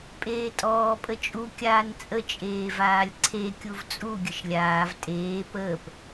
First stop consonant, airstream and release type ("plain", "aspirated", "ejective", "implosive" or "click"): ejective